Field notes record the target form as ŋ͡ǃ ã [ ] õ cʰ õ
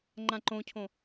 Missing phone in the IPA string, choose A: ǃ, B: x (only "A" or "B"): A